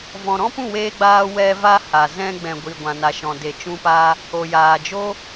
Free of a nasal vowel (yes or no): no